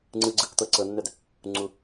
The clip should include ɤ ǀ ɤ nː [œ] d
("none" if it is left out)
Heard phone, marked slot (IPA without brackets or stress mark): œ